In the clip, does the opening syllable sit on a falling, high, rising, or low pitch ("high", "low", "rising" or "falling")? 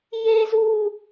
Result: high